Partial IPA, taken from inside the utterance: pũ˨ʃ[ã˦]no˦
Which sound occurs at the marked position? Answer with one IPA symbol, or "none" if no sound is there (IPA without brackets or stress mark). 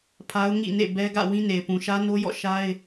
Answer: ä˦